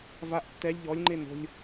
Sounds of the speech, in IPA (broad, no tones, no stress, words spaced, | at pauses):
vaʔ tːɛlʲ ʎɔlʲŋ͡ǃe no̤lʲ